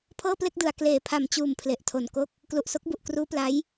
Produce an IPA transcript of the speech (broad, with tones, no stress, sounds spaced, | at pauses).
pʰ ɤː˥˩ p l e˥˩ k̚ d ɯ˨˩ a̯ k l eː˨˩ pʰ a˨˩ m t͡ɕ uː˨˩ m pʰ l e˨˩ ʔ tʰ o˨˩ n k o˥˩ k̚ | k l u˨˩ ʔ s o˦˥ k̚ b u˨˩ ʔ k r uː˦˥ p l a˦˥ j